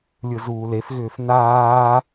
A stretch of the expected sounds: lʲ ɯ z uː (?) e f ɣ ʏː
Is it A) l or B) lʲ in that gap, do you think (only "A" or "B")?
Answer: A